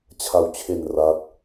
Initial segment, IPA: t͡ɕʰ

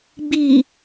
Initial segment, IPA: ɡ͡b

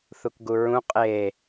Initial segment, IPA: θ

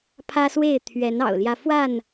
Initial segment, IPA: pʰ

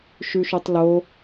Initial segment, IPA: ʃ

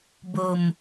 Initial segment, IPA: b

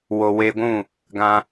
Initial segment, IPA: w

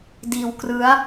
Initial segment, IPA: d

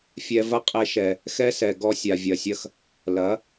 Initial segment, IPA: fʲ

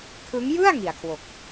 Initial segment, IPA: kʰ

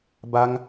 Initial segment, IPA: b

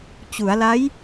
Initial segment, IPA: t͡ɕ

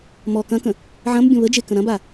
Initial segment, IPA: m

